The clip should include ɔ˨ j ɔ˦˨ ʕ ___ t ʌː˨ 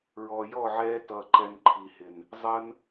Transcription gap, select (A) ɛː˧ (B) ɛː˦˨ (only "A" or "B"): A